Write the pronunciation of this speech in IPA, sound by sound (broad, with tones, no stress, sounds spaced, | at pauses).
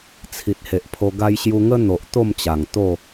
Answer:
t͡sʰ i˨ t̚ h e˨ ʔ pʰ o˧ ɡ a˧ j ɕ j u˧ ŋ ə˦ n̪ o˨ ʔ t̪ o˥˧ m t͡ɕ a˨˩ ŋ t̪ o˥˧